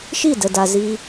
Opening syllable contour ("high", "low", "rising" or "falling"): falling